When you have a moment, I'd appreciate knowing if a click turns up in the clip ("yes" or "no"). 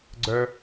yes